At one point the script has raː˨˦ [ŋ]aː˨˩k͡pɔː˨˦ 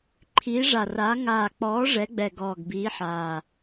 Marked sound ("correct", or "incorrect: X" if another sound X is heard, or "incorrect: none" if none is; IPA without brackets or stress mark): correct